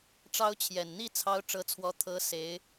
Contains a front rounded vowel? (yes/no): no